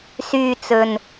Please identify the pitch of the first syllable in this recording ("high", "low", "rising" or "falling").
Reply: low